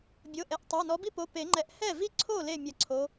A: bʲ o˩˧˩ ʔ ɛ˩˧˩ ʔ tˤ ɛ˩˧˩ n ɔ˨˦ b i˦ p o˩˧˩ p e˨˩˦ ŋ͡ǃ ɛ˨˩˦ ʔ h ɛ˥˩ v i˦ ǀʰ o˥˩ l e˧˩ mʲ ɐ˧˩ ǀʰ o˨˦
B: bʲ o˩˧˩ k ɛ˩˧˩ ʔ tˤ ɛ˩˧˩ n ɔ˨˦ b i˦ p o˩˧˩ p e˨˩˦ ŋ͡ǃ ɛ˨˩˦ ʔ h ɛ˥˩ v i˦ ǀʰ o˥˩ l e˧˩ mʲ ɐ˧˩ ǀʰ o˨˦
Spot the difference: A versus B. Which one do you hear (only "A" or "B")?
A